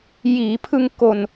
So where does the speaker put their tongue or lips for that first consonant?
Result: palate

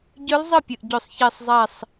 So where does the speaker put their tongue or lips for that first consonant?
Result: palate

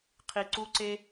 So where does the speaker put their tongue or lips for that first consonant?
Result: uvula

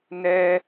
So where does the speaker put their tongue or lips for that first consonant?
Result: tongue tip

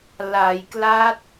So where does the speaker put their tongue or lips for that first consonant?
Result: tongue tip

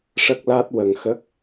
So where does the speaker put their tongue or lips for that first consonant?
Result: retroflex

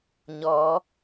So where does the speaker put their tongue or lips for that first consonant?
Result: palate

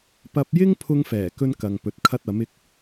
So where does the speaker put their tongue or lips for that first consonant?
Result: lips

